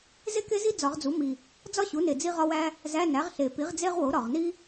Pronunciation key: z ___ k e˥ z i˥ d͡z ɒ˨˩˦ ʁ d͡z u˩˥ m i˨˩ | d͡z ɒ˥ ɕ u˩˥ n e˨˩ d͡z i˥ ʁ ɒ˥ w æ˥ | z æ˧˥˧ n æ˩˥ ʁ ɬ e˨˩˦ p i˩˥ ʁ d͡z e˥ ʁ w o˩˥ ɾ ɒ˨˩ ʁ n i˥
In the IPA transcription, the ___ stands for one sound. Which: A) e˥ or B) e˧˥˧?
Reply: A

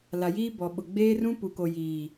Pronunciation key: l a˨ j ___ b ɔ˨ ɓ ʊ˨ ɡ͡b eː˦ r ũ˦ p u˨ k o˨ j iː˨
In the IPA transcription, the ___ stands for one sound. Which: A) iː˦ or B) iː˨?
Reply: A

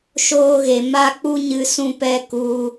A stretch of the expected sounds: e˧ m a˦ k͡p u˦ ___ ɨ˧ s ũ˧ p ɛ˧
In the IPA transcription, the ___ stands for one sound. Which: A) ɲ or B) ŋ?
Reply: A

